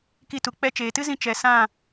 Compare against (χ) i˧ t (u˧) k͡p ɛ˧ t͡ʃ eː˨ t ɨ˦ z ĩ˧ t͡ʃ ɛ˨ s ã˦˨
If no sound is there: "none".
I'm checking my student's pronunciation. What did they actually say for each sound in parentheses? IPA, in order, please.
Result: k, u˨

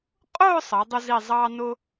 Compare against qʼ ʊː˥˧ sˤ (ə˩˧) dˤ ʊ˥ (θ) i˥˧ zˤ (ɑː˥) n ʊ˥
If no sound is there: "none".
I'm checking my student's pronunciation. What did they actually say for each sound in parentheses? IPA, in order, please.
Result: ə˩˧, z, ɑː˥

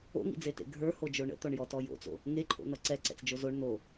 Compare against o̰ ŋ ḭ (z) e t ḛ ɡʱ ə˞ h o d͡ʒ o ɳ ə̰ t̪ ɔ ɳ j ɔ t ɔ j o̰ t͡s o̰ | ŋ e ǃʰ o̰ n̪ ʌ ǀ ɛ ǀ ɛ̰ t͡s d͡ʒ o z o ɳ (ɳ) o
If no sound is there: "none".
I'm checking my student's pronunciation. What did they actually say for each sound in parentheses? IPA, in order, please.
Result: d͡z, n̪

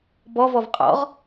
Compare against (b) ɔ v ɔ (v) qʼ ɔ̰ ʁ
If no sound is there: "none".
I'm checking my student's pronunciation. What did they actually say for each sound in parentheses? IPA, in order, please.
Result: b, v

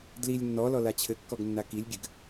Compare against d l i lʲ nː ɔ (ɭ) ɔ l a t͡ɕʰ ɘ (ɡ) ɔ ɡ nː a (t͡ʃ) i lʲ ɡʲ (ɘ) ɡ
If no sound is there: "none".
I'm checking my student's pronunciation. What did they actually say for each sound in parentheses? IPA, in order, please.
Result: l, kː, k, ɘ

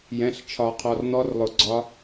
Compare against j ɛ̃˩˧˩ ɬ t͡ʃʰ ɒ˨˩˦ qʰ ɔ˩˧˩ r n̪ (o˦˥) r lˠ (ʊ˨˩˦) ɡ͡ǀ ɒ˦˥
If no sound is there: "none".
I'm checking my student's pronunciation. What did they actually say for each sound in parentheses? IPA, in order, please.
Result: ɔ˦˥, ʊ˨˩˦

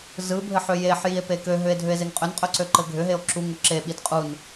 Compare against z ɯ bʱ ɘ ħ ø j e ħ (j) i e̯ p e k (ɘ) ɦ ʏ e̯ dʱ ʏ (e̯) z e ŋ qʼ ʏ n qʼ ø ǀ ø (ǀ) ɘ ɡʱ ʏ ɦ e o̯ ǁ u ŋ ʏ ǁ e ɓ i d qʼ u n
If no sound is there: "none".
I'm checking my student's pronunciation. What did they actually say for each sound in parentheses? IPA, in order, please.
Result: j, ø, e̯, ǃ

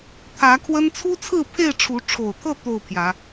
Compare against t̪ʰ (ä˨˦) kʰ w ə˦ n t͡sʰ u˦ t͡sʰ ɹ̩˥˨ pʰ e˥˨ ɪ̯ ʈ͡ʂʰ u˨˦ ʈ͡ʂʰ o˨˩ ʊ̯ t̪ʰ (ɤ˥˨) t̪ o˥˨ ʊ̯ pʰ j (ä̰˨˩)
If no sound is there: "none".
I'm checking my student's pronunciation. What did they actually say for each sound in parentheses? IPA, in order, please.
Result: ä˨˦, ɤ˥˨, ä˨˦

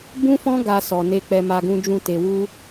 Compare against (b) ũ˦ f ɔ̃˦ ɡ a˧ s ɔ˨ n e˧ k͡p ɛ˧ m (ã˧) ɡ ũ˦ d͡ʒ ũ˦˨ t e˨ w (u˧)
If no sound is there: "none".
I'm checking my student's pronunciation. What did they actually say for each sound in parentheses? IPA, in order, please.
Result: b, a˧, u˧

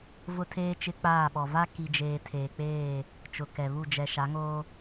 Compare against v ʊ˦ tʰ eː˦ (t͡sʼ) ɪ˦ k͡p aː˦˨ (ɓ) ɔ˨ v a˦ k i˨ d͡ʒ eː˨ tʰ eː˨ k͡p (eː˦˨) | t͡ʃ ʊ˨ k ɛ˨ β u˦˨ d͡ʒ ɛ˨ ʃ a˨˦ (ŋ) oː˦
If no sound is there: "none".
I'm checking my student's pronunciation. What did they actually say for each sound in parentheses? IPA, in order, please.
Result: t͡ʃ, ɓ, eː˦˨, ŋ

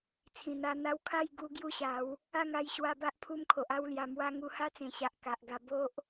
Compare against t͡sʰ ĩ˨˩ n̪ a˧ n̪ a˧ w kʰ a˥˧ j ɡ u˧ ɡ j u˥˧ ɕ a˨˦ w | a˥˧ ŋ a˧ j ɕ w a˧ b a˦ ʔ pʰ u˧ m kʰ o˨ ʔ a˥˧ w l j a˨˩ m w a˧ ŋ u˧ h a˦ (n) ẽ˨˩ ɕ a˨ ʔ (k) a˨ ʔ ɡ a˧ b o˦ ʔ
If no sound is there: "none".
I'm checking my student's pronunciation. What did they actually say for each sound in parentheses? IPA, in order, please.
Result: t͡s, k

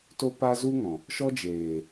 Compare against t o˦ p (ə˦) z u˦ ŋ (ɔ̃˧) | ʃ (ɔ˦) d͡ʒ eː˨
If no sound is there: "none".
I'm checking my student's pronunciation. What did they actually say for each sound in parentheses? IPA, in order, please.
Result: a˦, ɔ̃˨, ɔ˦

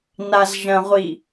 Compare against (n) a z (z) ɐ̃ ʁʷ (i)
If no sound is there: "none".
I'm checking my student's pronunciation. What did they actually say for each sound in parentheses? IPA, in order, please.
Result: n, ʒ, i

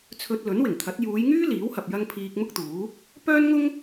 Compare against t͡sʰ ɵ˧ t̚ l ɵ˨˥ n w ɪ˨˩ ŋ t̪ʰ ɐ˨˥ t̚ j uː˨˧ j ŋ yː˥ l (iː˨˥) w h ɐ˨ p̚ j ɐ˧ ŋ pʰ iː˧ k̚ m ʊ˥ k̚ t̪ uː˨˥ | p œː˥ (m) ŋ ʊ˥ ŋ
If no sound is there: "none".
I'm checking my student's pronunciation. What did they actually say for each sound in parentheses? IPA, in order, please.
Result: iː˨˥, n

